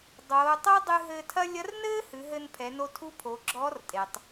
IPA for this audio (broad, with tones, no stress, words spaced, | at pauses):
dˤoː˩˧tˤo˥dˤɨ˧ ɦɘː˧tʰɐ˥ lʲɐ˧˥rnɘː˥hɨ˩˧ ɦɘ˧n pʰɛ˩˧no˧tʰu˧˥ pʰo˩˧ɡ͡ǁɔː˧˥rtʼe˩tˤ